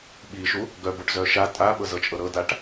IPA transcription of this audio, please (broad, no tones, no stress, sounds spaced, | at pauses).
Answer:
ɓ i ʃ u | ɡ œ b o ʈ z œ ʃ a tʼ a ɓ ɤ z ɤ t͡ʃʼ ɤ ɾ ɤ d a ʈ